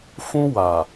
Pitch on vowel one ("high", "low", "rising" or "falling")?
high